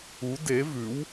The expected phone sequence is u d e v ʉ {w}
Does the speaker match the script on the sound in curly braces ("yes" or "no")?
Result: yes